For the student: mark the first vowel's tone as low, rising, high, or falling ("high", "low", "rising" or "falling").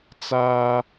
high